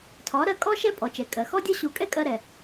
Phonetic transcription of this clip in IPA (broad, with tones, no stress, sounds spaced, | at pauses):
tʰ ɒ˩˥ ɾ ɜ˧ kʼ ɔ˥ ʃ ɛ˥ pʼ ɔ˩ t͡ʃ ɛ˩ kʼ ɜ˩ x ɔ˥ dʲ ɒ˥ ɕ u˧ kʼ ɛ˥ kʼ ɜ˧ ɾ ɛ˩